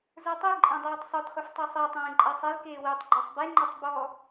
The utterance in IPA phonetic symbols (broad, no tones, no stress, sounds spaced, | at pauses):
z ə˞ tˤ i ǃʼ ẽ dˤ ɛː tˤ sˤ ɵ d χ ɵ f tˤ u sˤ ɛ tˤ ẽː ǃʼ ɛ sˤ e l k eː w i tˤ ɡ͡ǃ ɔ sˤ b e ŋ͡ǃ ɔ tˤ b ɔ